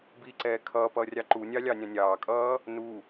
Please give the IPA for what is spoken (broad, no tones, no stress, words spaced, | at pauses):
biǀɛː kʰʌːpʌː rʲɑǃunʲɑ lʲɑnʲɑ̃nʲɑːkʼʌː | nu